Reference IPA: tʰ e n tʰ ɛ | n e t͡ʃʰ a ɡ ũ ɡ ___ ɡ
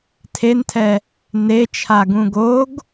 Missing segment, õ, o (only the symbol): o